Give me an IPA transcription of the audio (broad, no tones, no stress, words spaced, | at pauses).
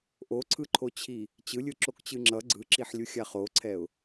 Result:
ʔoǀʰɯǃʰot͡ɕʰi | t͡ɕɯlʲɯǁokt͡ɕɯ ŋ͡ǁʌ ɡ͡ǀɯǁiħlʲuxʲa χoǀʰɛʊ̯